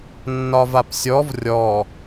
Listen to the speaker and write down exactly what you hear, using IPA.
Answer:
nːɒvapsʲɔv rʲɔ

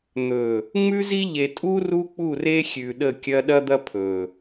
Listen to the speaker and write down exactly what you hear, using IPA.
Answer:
n̪ɵ˨ | ŋ͡mʉ˦zi˦ ʎe˨tʼu˦ ru˦k͡pu˦˨re˦ xʲʉ˨ɗə˦˨kʲɐ˦ ɗɐ˦d̪ɐ˦ pʰɵ˨

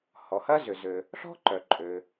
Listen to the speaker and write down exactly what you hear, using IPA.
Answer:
hɔ˩hɐ˥zʏ˩zø˩ | ɬɔ̤˥ǃœ˩ǃʼø˩

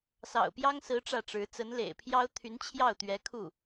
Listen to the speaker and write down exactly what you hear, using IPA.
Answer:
sɑ̰˨˩ʊ̯pjɑ˥ŋsɹ̩˧˥ ʈ͡ʂä˥˩ʈ͡ʂɻ̩˧˥ t͡sə˧˥nlḛ˨˩ɪ̯pʰjɑ˥ʊ̯ t̪ʰy˧˥n t͡ɕʰjɑ˥˩ʊ̯t̪ɥɛ˧˥ kʰu˥˩

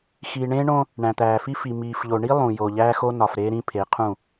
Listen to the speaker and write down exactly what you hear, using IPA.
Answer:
xiː˨ɳẽː˦ɳõ˦ | ɳæ̃˨t̪æː˨fi˦fi˨ miː˨fʎo˨ɳi˦ lˠũ˨jo˨ ʎæː˦xo˦nɒ˨fɾeː˦ ɾĩ˦pʰe˨˦qʰũ˦˨

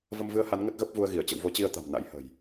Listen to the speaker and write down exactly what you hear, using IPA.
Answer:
və˧mvɨ˧ə̯ha˨˦n ŋə˦˥t̚ɣə˦˥p̚vu˧ə̯ɣi˧˩ə̯ t͡ɕə̰˧˨wvo˨˦t͡ɕi˧ə̯ t̪a̤˨˩mna̰˧˥jhə̤˨˩j

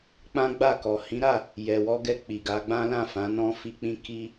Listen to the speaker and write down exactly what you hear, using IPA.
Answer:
k͡pã˦ɡ͡ba˦˨kɔ˨ hĩ˨˦ɾa˦˨ | jɛ˨wɔ˧ɡɛ˧ k͡pi˨ɡa˨˦ɡ͡bã˦ lã˦˨fã˨˦ nɔ̃˧fi˧k͡pĩ˧ ki˧

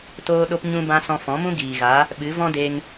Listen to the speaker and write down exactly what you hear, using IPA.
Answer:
toː˧ɗo˧p ɲũ˧bã˧ sɔ̃˧fɔ̃˨˦mũ˦ ɡiː˨ɣa˨˦ | ɓɨ˨˦vɔ̃˦de˧ŋ

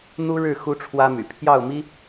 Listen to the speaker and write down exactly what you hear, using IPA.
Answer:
n̪u˥ɻɻ̩˥˩ xu˥ʈ͡ʂʰwä˥my̰˨˩ pʰjɑ˥˩ʊ̯mi˥

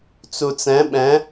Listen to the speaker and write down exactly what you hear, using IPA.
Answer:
t͡sut͡sɛ̃ ɓɛ̃

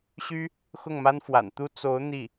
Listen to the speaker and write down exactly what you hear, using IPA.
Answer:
ɕy˥ | xʊ˥˩ŋma˥nfwa̰˨˩nt̪u˥ t͡so˧˥ʊ̯ n̪i˥˩

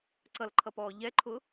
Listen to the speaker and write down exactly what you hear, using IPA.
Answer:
ǀʌlǃʰʌpɔː ʎɛǃʰʊ

